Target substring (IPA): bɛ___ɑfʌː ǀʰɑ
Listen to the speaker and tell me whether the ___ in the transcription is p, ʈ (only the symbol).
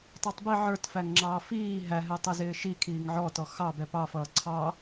p